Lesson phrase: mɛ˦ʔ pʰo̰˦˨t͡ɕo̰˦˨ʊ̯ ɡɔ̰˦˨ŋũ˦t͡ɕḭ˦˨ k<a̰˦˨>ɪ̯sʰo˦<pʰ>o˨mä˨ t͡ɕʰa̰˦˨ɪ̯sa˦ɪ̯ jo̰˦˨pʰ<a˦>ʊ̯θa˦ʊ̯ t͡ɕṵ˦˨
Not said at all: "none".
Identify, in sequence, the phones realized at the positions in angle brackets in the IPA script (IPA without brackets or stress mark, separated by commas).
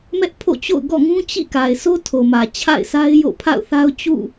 a˨, tʰ, a̰˦˨